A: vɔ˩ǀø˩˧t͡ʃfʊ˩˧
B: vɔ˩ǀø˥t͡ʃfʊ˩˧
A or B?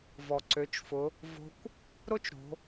A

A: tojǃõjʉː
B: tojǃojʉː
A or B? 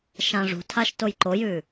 B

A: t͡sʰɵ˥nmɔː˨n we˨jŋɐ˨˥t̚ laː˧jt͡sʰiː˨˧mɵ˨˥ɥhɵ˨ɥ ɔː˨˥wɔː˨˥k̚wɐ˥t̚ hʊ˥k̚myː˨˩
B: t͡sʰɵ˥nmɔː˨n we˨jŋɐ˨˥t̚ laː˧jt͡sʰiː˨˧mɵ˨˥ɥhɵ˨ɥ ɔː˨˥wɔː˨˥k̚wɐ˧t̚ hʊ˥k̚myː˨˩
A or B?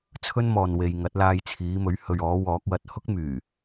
B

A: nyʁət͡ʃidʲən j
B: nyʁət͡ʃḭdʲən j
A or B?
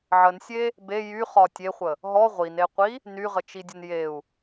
A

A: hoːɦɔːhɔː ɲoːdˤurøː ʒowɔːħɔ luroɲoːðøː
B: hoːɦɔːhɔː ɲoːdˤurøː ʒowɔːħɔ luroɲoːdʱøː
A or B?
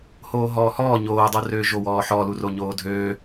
B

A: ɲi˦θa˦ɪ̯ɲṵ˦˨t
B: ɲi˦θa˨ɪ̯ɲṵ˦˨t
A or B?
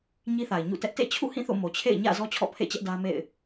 B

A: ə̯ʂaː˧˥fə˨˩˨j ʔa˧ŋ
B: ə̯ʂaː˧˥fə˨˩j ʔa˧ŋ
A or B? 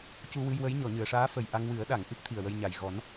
B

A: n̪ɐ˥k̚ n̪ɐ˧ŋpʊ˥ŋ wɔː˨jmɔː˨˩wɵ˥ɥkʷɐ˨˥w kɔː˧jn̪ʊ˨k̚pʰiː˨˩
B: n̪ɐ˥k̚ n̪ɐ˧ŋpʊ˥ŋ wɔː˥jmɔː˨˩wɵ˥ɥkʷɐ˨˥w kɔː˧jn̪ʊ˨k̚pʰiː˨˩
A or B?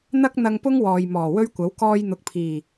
A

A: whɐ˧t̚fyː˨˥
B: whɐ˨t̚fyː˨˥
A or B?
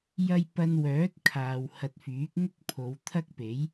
A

